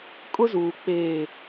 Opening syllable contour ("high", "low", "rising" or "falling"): high